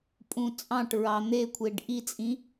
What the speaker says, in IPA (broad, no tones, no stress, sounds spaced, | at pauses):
pʼ ũ t͡sʼ ɑ̃ ʈ ɹ ɑ n̪ e kʷʰ e ɖ ʔ i t͡sʼ ĩ